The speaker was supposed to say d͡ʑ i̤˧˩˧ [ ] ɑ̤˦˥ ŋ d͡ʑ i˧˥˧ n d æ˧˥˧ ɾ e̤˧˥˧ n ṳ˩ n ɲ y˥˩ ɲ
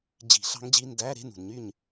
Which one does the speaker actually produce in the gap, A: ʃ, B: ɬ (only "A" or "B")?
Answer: B